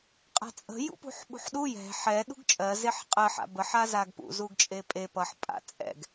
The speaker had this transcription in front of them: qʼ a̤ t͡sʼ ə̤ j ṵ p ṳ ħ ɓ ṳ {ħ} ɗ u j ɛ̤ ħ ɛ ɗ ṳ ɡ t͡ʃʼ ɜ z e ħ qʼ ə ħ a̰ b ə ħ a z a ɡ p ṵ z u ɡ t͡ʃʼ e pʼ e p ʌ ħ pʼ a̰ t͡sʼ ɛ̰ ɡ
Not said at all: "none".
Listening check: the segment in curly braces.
ħ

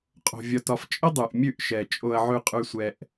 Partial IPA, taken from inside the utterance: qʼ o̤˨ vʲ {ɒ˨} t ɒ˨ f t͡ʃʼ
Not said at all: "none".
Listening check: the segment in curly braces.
ɒ˨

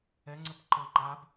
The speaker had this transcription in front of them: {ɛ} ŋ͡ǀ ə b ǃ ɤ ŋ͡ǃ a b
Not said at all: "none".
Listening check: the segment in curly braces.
ɛ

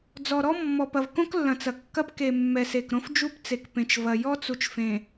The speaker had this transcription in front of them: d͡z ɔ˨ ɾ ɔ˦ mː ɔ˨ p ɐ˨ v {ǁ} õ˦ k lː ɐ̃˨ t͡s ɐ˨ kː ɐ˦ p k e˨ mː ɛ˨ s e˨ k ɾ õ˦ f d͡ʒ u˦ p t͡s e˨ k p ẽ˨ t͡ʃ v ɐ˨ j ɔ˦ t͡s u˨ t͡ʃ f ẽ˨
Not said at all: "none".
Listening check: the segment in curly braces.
k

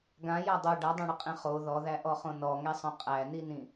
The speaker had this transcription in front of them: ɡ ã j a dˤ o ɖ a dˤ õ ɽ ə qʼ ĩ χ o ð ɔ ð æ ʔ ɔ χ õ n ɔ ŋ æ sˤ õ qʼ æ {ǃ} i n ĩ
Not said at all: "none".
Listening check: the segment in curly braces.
n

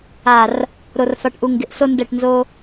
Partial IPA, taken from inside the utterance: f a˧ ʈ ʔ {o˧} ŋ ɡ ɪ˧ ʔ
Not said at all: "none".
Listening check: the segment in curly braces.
u˧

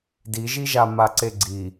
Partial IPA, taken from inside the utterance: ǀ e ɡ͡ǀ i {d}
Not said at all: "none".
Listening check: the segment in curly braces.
none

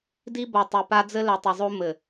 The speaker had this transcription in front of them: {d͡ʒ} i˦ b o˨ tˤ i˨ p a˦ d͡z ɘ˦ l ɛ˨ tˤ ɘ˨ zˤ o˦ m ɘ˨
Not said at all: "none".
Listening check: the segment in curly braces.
d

